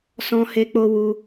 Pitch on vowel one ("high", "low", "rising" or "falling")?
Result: high